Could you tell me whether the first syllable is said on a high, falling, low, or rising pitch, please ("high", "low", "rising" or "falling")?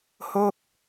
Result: falling